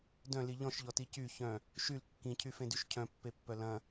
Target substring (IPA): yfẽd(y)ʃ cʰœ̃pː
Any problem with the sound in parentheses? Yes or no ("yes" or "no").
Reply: no